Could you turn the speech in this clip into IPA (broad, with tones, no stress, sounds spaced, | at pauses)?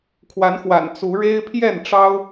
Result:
kʰ w a˨˦ n x w a̰˨˩ n t͡s u˨˦ ɻ e˦ ɪ̯ pʰ j ɛ˥˨ n ʈ͡ʂ ɑ˦ ʊ̯